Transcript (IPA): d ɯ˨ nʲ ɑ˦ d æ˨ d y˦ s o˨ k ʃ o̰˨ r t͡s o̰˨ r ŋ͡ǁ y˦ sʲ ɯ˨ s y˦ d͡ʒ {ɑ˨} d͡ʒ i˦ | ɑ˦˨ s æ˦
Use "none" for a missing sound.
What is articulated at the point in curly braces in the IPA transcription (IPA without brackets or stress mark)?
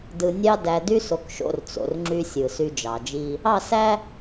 ɑ˨